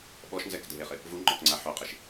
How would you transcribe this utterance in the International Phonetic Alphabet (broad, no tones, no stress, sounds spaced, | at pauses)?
ɓ ɔ ʃ n z ɛ k dʱ e χ ɪ | v u ŋ͡ǃ ɔ k ŋ͡ǀ a ħ o qʼ ɪ ʃ